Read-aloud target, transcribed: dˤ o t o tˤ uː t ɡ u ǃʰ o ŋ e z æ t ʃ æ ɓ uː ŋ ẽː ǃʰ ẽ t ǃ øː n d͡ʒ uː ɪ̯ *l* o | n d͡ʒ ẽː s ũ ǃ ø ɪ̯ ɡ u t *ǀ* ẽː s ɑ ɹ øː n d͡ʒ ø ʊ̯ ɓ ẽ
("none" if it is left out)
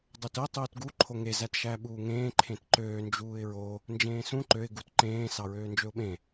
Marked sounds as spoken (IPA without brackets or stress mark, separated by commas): ɹ, ǃ